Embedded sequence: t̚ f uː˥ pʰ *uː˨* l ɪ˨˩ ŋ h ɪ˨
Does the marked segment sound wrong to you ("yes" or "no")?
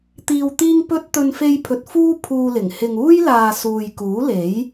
yes